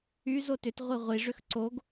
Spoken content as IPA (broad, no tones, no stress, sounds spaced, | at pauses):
y z o t ʏ t ʁʷ i ʁʷ i ʐ ʏ x ǀ o ɡ